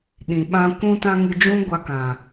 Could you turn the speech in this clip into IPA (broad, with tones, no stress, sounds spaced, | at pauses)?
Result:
ɗ ĩ˨ ɓ ã˧ kʷ ũ˧ t ã˧ ŋ ɨ˧ d͡ʒ ũ˦ ɡʷ a˧ k ã˨